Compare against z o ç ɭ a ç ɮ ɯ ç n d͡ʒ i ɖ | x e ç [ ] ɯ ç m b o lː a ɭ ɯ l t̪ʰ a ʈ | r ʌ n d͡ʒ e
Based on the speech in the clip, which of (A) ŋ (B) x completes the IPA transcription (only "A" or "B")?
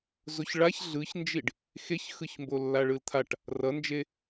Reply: B